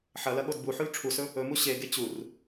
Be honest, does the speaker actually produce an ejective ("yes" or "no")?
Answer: no